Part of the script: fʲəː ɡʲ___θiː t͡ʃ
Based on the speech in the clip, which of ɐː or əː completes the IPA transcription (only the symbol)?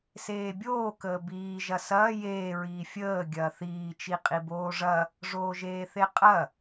ɐː